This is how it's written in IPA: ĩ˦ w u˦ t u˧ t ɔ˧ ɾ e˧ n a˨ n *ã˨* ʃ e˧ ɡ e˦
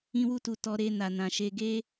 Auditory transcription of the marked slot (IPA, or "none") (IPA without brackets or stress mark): ã˨